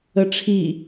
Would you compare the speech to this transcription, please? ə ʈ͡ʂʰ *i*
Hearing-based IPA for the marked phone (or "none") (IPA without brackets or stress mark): i